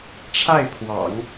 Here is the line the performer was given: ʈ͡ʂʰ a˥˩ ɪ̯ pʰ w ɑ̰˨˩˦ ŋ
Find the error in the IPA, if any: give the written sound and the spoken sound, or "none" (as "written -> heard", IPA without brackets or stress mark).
none